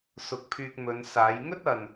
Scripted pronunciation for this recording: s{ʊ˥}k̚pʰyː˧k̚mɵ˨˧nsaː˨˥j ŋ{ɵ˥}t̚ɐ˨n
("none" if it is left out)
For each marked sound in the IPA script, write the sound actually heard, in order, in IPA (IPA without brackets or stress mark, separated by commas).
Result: ʊ˨˥, ɵ˥